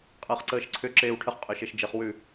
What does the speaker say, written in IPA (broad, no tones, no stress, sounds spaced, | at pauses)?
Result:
qʼ əː χ ǀ əː ʃ ǀʰ ʏ ǁ eː w ʈʰ ə χ qʼ ø ʃ e ʃ d͡ʒ ɪ χ w ʉ